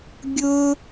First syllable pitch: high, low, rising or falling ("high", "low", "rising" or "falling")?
high